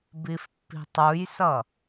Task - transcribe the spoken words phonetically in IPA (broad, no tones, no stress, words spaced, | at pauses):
bifpːi̤tˤujsʌ